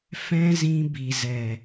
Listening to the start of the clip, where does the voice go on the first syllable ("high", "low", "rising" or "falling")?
high